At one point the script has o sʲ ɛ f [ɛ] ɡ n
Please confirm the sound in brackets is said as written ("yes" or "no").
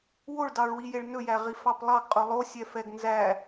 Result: yes